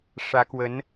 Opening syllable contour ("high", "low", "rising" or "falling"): rising